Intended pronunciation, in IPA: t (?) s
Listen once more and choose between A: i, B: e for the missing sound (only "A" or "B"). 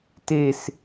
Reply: B